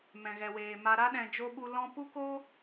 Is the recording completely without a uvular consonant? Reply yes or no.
yes